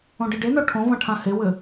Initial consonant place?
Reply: retroflex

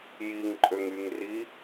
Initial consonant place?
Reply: palatal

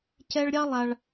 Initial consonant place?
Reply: palatal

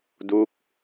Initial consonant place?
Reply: alveolar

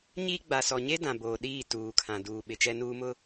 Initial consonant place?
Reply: palatal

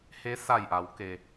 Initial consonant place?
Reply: glottal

